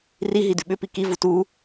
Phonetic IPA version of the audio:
riɦi dʉɓʏpi kivu tu

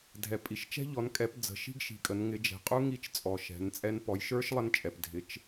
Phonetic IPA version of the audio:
dʱɛ˨pʼi˨ʃt͡ʃɛ̤˥ ʎɔ˨˦nkʼɛ˨˦p d͡zə̤˨˦ ʃi̤˥ɡʃi̤˨kʼə˨˦n ŋɪ˨˦d͡ʒɛ̤˨qʼu˥ ŋi˥t͡ʃt͡sʼɔ˨ʃɛ̤˨˦nt͡sʼɛ˥n pɔ˨˦jʃə˞˥ʃ lˠə˥nt͡ʃʼɛ˨p dʱɪ˨˦t͡ʃ

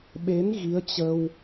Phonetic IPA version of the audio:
ɓe˨˦n ɣi˨˦ə̯t͡ɕə˧w

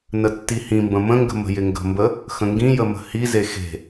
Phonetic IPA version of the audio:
nətːihĩmbə̃ mə̃ŋɡə̤ mə̤jɪŋɡə̤mbə | xə̃ŋɡĩjə mə̤hize xe̤

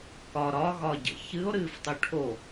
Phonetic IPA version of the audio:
kɒ ɾɒɣɒɟə̰ çɨo̯ɾɨːftˤu ʈʰo

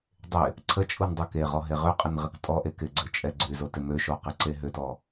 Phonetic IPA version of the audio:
dˤɪ | ǀʰət͡ʃʼun dˤøkeʁɔ ɦeʁʏqʼən ʁɪktʼɔʔe kɪɡ͡ǀø t͡ʃʼɛɡ͡ǀyzo tɪmøʃo qɪǀeɦʏtɔ

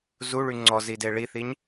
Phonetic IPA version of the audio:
zuɭy ŋ͡ǀɔzide ɭiθiɲ

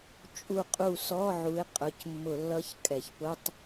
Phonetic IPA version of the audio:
t͡ʃʼu˥˨qʼu˥˨ sɔ˧˥˧ʕu˨˦ɪ̯ qʼʊ˩˧˩c mːʊ˧˩˧lːʌ˧˥˧ç kʼɛ˩çpʊ˧˥˧tˤ

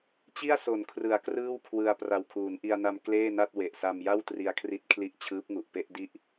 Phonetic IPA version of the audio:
t͡ɕi˥˩a̯ so˩˦nkʰrɯ˩˦a̯ krɯː˥˩wkʰwɯ˧a̯ pra˨˩wkʰuː˩˦nʔi˧a̯na˧m kleː˥˩na˥˩t̚ we˨˩ʔsa˧mja˥˩w tri˧a̯kʰri˦˥t̚kʰli˦˥ʔ t͡ɕʰɯː˦˥p̚ŋu˨˩ʔpe˥˩ʔdi˥˩ʔ

